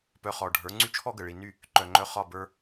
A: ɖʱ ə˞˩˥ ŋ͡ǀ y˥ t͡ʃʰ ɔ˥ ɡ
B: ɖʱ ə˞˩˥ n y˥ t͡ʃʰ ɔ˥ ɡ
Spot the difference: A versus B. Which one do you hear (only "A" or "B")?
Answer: A